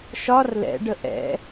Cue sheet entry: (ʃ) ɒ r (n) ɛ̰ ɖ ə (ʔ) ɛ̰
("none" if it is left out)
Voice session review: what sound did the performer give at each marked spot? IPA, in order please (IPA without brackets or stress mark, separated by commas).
ʃ, l, ʔ